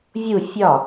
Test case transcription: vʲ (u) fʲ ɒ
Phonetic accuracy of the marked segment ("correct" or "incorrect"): correct